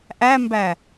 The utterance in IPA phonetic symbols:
ʔ æ m b æ

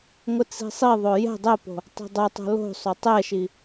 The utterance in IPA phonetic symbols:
ŋʷ ɪ t͡s i̤ sˤ i ðˤ o j ɛ̤ dˤ ɛ p o̤ | tˤ o̤ dˤ o tˤ o̤ l o̤ sˤ o tˤ ɛ ʃ i

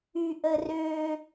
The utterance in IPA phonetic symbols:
y ʔ ə r ø

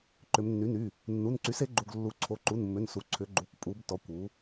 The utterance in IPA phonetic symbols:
ǃ ʏ˩˧ m nː y˩˥ n y˩˧˩ | nː u˩˧˩ n ǀ y˩˥ s e˩˥ ɡ͡ǃ u˩˧˩ ɡ lː u˩˧ ǀʰ o˩˧˩ ǃ u˩˧˩ n mː ʏ˩˧˩ n s u˩˧ ǀʰ ʏ˩˧ ɡ͡ǃ u˩˧˩ kʷ pʼ u˩˧ b t ɔ˩˧ kʷ u˩˥

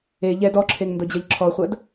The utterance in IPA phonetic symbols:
e ʎ ɛ d ɔ ǁʰ e ŋ n d ɤ d͡ʑ ɐ ʎ ǁʰ ɔ χʷ ɐ d

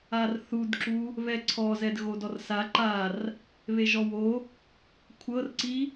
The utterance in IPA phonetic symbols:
a r θ u d ǁ u | β ɛ ǀʰ ɔ z ɛ d ɣ o d ɔ r s a ǃ a r | β e ʒ ɔ w o | kʷʰ ɤ r ǀ i

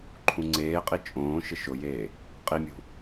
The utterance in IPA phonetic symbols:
ǃʰ ũ ŋ͡ǀ eː qʼ i t͡ʃʼ õː ʃ ɪ ʃ ʊ j eː | qʼ i mʲ ṳ

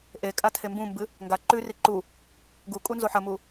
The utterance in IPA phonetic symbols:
ʔ e kʼ a tʰ e m b ũ m b ɨ | ŋ ɡ a ǃ ʉ r i ǃ u | ɡ u kʼ u n z o ħ ɐ m u

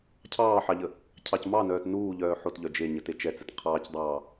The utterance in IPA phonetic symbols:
cʰ ɑː ħ ɑ ʎ ə | cʰ ɑ c m ɑ n œː t n uː ʎ œː ħ o t ʎ œ d͡ʒ e ɲ ə t e t͡ʃ ɛ t͡s ɛ t qʰ ɑː c dˤ ɑː

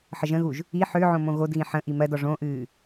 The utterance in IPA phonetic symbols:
ħ ə ʒ ə̃ ɣ u ʒ | i ħ ʏː ʕ õ m õ ɣ o d ɣ ĩ ħ ə̃ ʔ i m ɜ d ɔ ʐ õ ʔ ɨː

